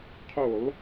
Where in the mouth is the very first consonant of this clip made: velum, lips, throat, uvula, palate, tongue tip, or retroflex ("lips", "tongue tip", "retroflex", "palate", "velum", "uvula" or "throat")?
uvula